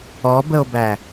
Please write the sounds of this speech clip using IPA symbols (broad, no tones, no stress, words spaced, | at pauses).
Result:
ɔbəo̯bæ